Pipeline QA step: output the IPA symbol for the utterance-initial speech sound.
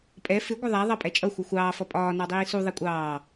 pʼ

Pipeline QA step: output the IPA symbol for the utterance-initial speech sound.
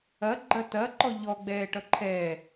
ɐ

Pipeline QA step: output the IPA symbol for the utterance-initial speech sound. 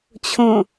t͡ɕʰ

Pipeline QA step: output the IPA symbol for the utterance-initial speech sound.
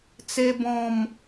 t͡s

